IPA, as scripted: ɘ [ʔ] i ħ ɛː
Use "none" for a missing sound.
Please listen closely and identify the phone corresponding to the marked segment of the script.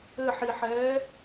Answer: ħ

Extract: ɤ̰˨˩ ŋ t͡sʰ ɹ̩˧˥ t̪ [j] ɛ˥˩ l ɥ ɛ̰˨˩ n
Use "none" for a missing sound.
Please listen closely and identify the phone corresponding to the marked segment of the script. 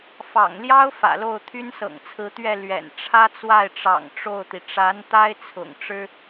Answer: ɥ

